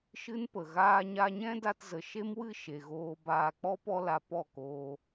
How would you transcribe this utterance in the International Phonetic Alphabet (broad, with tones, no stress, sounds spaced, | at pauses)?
ʃ ɨ˦ n p ə˨ ɣ aː˦ ɲ a˦ ɲ ɛ̃˦ d a˧ t z ə˨ ʃ e˦ m w ɨ˦˨ ʃ e˨ ɣ oː˧ b aː˧ k͡p ɔ˦ p ɔ˧ l a˧ p ɔ˦˨ k oː˧